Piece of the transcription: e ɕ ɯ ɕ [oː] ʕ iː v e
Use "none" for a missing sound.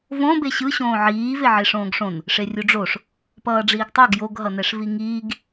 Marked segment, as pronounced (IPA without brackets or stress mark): õː